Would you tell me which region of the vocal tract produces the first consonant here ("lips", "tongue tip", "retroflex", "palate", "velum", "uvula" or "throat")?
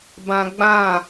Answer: lips